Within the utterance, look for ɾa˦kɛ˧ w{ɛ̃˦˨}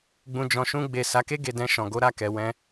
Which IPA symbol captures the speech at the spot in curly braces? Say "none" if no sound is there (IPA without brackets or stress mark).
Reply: ɛ̃˧